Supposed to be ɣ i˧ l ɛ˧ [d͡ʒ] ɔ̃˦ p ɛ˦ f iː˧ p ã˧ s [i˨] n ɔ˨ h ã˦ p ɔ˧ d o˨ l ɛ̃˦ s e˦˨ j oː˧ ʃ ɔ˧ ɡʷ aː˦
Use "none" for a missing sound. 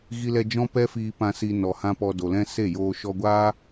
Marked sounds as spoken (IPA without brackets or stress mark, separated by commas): d͡ʒ, i˧